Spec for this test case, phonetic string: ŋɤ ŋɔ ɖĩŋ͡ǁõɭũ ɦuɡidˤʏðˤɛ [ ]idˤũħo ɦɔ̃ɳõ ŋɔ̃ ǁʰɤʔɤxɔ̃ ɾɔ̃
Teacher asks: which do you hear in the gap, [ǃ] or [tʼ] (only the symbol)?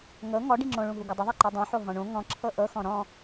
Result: ǃ